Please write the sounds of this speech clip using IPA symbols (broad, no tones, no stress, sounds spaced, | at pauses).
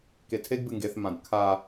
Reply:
k e tʰ e ɡ b ɨ ŋ ɡ e θ m ã d kʰ a